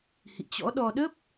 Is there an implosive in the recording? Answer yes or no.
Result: yes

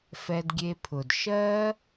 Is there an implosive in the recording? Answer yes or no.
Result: no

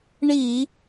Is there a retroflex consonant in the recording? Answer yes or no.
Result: yes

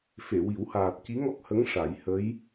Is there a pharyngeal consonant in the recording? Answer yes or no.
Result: no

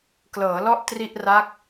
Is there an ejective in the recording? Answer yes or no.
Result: no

